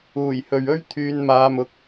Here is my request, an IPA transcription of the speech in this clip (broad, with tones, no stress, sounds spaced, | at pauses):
uː˨˩ j h ɵ˨ ɥ ɵ˥ ɥ t̪ʰ yː˨˧ n m aː˨˧ m ʊ˨˥ k̚